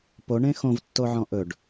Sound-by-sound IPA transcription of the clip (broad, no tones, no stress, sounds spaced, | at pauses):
p o ɳ ẽ x õ v tː o ʕ ɔ̃ ʔ ɵ ɖ